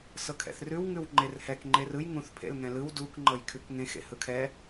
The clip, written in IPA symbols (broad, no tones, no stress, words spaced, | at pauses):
sɤkʰɛ̰θrʉw ŋʉwŋ͡ǃerhɛk ŋ͡ǃerɯj ŋũθ pʰḛlŋɛ̃lɯw duk ŋ͡ǃɤjkʰʉkŋẽx ḛhɯkʰɛ